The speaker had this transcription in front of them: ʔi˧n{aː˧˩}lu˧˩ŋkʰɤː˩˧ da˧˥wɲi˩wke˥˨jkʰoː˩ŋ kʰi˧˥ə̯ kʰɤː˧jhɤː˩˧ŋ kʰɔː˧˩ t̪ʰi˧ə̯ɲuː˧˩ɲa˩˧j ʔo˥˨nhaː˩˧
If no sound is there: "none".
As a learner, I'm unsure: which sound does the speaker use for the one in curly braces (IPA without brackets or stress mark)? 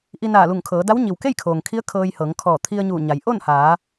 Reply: aː˧˩